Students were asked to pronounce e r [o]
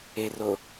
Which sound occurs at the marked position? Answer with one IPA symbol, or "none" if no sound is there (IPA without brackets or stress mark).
o